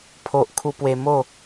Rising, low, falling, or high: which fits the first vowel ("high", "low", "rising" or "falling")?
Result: low